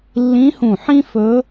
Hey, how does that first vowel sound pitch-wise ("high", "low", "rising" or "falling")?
rising